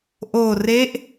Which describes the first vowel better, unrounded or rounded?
rounded